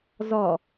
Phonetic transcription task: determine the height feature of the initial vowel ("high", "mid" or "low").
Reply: low